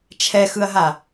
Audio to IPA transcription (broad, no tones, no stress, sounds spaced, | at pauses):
t͡ʃʰ ɛ x ɯ ɐ̯ ɦ a